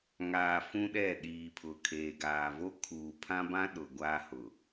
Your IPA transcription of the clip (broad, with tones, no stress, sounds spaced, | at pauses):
ŋ aː˨ f ũ˦ ɗ ɛ˦˨ ɗ iː˨ pʰ ʊ˨ kʰ eː˨ ɡ aː˨ v o˦ kʰ uː˨ pʰ ã˦ b ã˦ ɗ ʊ˨ ɡʷ a˦ h ʊ˨